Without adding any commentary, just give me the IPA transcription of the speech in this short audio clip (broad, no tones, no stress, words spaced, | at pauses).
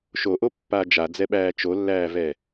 ʃoʔopːaː d͡ʒad͡zɛɓæː t͡ʃolːæːvɛ